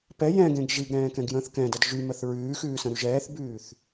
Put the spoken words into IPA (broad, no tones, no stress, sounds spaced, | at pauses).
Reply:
p ɛ j ɛ̃ ɡ ẽ ɡ ʒ i ɡ ɾ ɛ̃ː k ɛ̃ ɡ j ə̃ː θ k ɛ̃ d ə d ʒ y m ə θ ɹ ʉː x ʉː s ə̃ ɾ y ʒ ɛː θ b ʉː θ